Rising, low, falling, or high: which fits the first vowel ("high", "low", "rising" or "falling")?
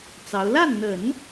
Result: rising